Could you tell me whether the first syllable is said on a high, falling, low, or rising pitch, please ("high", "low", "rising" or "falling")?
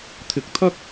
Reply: rising